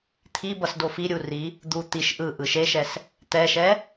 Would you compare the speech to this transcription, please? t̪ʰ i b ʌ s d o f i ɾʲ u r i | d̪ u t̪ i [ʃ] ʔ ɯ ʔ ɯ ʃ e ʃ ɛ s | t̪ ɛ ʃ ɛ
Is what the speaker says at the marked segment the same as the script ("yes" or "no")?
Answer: yes